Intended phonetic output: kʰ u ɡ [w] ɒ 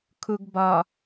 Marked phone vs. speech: incorrect: b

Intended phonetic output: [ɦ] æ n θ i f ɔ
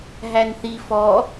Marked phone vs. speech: correct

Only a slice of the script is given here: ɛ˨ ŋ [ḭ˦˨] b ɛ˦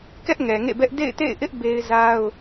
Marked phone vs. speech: incorrect: ḛ˦˨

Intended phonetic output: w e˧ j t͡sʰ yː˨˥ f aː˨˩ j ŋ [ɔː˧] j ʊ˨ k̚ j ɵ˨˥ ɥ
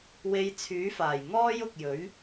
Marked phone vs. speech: incorrect: ɔː˥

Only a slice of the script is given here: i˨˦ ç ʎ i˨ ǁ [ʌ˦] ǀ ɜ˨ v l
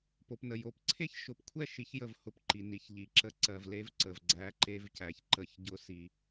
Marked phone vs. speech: incorrect: ə˦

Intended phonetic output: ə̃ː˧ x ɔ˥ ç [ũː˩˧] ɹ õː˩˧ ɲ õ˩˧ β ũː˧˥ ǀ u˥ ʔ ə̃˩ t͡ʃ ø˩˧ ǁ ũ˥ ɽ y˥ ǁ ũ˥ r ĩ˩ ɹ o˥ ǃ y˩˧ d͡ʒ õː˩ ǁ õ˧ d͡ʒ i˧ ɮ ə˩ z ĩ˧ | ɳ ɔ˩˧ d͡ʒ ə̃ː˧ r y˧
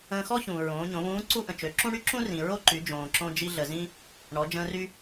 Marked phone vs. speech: incorrect: ũː˩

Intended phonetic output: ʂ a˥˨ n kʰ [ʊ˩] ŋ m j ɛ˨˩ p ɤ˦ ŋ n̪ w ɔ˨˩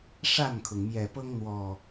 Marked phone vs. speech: correct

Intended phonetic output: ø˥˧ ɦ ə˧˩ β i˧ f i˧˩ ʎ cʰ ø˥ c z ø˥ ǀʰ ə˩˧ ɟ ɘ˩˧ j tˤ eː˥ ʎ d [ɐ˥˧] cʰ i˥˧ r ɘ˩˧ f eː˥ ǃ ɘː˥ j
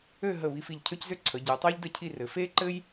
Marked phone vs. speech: incorrect: ə˥˧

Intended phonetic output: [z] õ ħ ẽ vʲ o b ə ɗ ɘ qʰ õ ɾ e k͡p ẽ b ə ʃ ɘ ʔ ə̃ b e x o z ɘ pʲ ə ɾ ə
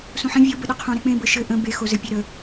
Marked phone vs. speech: incorrect: s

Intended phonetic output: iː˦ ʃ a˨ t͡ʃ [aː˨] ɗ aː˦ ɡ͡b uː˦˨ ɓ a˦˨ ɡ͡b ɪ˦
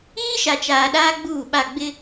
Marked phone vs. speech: correct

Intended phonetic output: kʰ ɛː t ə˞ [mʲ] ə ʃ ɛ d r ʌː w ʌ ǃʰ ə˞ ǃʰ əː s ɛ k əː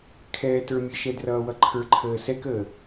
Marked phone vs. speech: correct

